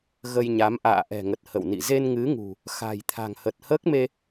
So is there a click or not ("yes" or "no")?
no